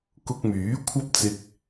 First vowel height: high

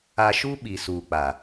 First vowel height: low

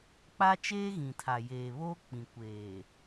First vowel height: low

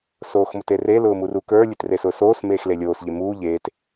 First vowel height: mid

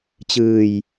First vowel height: high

